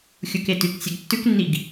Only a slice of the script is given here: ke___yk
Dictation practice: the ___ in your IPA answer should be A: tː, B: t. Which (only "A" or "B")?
B